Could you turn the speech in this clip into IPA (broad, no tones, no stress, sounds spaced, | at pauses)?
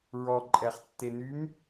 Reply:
ɹ ɔ ǃʼ ɛ χ tː e n y m